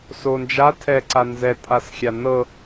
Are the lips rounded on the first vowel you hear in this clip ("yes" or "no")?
yes